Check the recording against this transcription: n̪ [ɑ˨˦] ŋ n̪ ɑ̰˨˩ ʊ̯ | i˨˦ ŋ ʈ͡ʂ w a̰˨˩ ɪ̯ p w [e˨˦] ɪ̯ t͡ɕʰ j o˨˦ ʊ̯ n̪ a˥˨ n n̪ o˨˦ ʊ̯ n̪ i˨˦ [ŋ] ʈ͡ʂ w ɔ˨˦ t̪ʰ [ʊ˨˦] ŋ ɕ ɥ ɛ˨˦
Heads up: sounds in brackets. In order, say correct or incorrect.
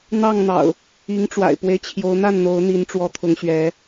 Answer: incorrect: ɑ˥˨, incorrect: e˦, incorrect: n, correct

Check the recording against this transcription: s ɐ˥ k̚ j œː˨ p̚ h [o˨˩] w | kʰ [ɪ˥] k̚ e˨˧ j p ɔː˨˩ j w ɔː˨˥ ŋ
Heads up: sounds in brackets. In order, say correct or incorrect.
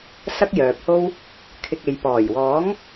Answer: incorrect: o˥, incorrect: ɪ˧

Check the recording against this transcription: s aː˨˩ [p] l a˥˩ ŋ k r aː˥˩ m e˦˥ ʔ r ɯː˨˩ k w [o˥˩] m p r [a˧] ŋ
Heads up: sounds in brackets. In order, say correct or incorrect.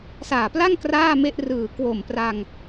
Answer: correct, incorrect: o˨˩, correct

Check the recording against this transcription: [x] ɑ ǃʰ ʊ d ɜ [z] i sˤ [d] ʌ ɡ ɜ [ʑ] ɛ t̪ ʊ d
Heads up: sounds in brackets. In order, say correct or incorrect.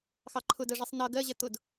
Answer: correct, incorrect: ʐ, incorrect: n, correct

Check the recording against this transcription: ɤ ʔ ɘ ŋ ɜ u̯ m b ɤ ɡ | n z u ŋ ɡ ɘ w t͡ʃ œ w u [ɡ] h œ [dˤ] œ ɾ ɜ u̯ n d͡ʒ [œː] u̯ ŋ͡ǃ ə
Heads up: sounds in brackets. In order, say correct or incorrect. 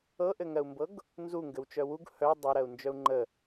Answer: correct, correct, incorrect: œ

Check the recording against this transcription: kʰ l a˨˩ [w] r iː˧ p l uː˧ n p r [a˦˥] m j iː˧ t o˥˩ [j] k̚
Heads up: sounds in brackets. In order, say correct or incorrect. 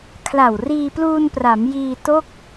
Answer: correct, incorrect: a˩˦, incorrect: none

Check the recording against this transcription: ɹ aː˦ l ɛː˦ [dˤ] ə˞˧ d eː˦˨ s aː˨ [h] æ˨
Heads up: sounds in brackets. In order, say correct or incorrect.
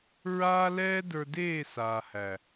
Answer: incorrect: d, correct

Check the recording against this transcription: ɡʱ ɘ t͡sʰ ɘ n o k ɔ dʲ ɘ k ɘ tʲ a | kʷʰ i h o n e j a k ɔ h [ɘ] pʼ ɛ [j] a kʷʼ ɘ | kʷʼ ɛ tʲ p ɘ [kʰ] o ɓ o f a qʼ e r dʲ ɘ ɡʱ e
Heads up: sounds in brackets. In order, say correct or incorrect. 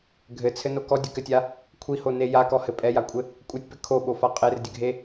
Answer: correct, correct, correct

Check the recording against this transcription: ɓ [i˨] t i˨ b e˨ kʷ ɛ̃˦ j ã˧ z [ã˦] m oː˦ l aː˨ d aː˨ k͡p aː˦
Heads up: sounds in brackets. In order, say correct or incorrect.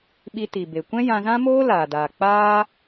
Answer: incorrect: i˧, correct

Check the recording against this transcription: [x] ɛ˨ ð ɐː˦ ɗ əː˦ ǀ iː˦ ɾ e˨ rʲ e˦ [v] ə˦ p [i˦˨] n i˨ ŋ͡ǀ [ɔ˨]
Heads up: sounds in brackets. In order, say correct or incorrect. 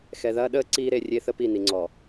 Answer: correct, incorrect: θ, correct, correct

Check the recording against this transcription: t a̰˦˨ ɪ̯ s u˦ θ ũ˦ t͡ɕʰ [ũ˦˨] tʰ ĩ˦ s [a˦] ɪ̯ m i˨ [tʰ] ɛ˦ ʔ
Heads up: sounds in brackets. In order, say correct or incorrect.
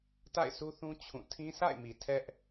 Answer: correct, incorrect: a̰˦˨, correct

